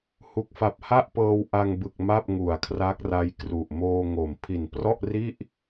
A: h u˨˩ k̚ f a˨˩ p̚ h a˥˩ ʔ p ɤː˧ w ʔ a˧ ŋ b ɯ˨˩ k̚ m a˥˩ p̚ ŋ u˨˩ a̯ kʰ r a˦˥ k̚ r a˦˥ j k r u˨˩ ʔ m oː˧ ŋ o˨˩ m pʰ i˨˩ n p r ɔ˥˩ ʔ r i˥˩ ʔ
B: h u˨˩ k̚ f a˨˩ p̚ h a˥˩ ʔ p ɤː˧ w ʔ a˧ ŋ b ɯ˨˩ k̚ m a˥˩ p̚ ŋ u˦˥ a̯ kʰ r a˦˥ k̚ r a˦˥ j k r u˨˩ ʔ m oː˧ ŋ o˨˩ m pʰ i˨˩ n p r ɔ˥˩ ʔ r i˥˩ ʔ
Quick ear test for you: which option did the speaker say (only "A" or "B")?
A